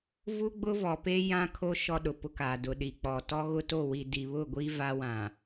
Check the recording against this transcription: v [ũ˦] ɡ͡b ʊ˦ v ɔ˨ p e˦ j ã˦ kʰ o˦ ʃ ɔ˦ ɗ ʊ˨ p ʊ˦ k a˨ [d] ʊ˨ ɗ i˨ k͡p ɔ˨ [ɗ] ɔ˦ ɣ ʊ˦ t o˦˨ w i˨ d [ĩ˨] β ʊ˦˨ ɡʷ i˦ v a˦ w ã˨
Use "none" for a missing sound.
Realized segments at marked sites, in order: u˦, d, t, i˨

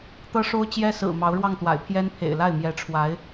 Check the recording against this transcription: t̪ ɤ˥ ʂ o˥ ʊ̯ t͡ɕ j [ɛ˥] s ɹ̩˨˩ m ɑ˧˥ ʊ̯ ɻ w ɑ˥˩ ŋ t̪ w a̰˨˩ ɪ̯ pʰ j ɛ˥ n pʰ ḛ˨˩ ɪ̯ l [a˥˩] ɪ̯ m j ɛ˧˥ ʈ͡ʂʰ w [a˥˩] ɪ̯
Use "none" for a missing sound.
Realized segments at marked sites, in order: ɛ˥, a˥˩, a˧˥

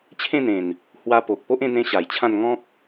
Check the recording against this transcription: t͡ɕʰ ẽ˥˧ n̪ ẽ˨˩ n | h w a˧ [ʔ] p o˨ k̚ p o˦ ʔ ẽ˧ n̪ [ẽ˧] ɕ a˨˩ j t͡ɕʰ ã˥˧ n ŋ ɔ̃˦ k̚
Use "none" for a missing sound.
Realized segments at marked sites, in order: none, ẽ˧

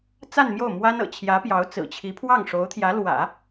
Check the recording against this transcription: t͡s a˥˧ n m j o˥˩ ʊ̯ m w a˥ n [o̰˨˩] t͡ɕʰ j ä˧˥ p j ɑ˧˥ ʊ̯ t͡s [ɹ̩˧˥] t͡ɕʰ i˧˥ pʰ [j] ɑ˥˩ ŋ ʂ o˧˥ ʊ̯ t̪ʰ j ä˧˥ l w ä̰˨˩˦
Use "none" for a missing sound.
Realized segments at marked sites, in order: ɤ̰˨˩, ɹ̩˨˩, w

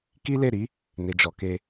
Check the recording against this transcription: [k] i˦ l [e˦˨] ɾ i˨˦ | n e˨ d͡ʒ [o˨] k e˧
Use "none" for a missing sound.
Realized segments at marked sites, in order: k, e˦˨, ɔ˨

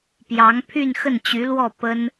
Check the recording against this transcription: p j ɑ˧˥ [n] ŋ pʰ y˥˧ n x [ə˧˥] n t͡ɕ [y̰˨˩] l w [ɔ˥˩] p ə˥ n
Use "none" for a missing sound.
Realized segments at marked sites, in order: none, ə˥˩, y˧˥, ɔ˥˩

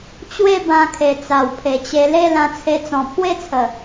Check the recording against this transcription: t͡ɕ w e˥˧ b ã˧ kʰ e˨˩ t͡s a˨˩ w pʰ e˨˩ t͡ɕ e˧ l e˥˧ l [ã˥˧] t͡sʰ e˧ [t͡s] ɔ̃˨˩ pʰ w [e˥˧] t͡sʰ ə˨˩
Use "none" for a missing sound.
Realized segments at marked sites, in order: ã˧, t͡s, e˥˧

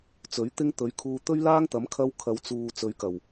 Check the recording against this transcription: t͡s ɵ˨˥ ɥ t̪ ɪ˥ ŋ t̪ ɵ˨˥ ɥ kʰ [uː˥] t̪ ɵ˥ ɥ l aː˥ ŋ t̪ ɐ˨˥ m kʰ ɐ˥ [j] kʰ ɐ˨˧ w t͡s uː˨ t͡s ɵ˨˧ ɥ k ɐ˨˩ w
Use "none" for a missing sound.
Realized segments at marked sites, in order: uː˧, w

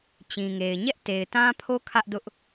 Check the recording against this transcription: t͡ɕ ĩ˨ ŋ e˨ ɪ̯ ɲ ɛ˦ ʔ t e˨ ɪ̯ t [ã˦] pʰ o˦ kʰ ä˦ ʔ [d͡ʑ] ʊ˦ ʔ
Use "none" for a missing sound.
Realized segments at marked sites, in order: ã˦, d

